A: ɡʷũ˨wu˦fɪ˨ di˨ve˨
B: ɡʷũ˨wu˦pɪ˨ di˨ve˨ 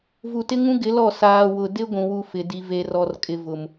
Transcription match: A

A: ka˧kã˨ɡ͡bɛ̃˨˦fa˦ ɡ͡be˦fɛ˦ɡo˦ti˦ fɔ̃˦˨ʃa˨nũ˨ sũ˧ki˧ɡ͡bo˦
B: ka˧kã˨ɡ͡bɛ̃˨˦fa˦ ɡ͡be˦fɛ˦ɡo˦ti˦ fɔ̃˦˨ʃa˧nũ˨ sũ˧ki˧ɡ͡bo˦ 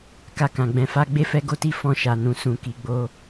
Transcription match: A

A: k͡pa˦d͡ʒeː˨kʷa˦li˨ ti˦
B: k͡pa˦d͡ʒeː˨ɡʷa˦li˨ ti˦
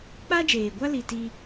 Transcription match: B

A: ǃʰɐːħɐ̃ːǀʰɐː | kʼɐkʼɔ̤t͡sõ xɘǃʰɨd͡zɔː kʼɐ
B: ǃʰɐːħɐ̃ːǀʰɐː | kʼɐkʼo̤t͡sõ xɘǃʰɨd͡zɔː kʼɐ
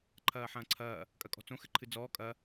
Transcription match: A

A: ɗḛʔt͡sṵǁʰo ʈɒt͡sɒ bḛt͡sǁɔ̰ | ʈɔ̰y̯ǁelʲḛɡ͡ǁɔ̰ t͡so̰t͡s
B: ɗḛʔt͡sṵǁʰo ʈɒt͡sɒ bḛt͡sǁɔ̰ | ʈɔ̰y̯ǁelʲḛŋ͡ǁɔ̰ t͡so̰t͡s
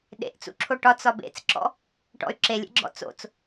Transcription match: A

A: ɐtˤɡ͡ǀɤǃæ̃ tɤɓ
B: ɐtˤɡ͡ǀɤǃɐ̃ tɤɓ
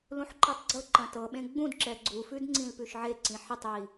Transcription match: B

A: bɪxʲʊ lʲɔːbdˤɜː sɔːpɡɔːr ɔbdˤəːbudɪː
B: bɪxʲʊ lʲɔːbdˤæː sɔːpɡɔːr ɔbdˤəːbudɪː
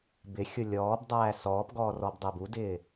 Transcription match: B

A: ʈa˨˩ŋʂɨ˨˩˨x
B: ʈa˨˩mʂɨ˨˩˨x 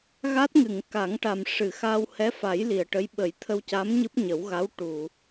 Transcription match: B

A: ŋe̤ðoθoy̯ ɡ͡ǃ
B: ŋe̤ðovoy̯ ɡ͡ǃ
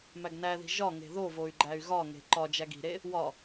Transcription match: B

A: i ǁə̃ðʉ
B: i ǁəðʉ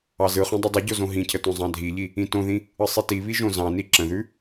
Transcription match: A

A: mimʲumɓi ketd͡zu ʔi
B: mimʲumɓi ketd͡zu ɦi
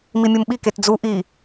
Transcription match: A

